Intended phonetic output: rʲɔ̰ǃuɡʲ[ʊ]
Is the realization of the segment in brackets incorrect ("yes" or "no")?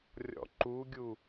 yes